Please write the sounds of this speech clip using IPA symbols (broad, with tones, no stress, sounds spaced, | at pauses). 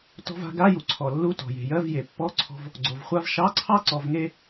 t ɔ̤˧ v a̤˧ ɡ a˧˥˧ j u˩ ǀʰ ɔ˩ lː u˧˥˧ t ɔ̤˩ j e̤˩ j ɜ˧˥˧ v j e˩ pː ɔ˧˥˧ ǀʰ ɔ̤˧ v | ɡ͡ǀ o˩ v χʷ a˥ v ʃ ɑ˧˥˧ ǀʰ ɑ˥ ǀ ɔ˧ v ŋ e˥